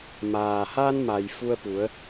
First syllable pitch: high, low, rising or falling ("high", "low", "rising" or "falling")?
low